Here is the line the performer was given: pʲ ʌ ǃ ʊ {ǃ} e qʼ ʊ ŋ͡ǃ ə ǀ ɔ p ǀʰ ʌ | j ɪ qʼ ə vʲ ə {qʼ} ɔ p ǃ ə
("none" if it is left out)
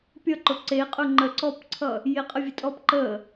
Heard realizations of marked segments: ǀ, tʼ

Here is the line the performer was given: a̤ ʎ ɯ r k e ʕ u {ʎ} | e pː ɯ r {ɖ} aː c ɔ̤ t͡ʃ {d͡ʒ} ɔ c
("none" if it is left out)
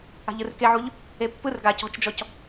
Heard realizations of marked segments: ʎ, ɡ, d͡ʒ

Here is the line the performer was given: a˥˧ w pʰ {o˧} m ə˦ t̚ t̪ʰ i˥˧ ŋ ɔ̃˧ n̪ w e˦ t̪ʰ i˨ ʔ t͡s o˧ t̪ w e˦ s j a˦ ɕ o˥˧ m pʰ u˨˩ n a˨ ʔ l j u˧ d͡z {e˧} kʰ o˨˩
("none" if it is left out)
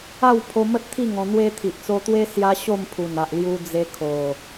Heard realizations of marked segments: o˧, e˧

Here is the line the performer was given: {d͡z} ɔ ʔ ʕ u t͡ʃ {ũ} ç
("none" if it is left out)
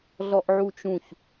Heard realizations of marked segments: ɮ, ũ

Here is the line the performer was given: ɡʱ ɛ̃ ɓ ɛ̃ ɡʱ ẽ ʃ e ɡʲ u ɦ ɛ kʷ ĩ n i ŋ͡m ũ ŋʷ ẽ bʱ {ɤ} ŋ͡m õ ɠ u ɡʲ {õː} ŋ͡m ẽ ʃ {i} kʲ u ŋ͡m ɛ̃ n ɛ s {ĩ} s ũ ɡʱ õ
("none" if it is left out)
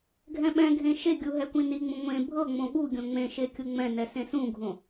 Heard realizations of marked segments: ɤ, õ, e, ẽ

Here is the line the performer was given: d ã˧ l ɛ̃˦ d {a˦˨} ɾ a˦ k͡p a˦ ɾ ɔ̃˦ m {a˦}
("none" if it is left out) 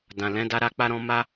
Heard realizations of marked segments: a˦, a˦

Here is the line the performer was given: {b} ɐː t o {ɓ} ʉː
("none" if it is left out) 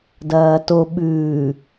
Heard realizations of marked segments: d, ɓ

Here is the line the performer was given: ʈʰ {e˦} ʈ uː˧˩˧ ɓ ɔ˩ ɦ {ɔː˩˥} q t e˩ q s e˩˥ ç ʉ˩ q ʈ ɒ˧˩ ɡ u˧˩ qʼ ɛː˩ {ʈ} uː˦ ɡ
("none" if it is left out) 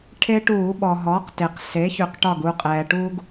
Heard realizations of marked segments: e˦, ɔː˩˥, ʈ

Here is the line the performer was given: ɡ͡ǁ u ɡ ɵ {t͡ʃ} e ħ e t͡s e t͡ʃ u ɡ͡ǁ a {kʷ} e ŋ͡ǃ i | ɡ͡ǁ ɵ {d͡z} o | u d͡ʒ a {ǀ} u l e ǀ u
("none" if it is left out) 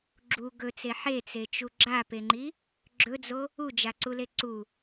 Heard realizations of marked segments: t͡s, p, d͡z, ǀ

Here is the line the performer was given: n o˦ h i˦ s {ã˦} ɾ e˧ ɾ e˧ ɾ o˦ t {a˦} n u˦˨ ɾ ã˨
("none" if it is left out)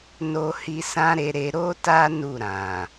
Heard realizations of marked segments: ã˦, a˦

